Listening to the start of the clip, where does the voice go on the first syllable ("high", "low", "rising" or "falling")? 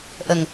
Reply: low